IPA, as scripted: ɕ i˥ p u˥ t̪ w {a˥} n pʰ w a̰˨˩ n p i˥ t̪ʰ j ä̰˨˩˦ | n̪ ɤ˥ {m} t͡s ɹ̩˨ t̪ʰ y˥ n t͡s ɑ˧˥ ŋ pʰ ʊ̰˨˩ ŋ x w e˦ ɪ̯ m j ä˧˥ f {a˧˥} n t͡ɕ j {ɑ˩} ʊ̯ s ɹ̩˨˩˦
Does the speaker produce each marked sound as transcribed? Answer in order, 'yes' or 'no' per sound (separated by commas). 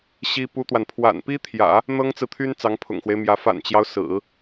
no, no, no, no